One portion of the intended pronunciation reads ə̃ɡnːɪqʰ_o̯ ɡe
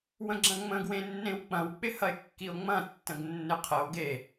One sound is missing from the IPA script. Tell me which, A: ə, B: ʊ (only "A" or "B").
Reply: A